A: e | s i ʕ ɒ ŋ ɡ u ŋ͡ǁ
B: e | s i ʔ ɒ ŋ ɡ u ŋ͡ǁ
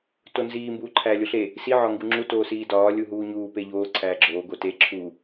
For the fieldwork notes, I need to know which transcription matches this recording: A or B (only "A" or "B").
A